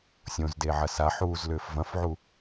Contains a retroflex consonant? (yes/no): no